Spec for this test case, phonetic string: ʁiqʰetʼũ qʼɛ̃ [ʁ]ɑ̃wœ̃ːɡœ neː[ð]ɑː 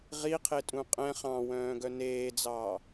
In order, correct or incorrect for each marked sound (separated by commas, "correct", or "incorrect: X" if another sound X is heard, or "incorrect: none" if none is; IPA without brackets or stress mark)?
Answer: incorrect: χ, incorrect: d͡z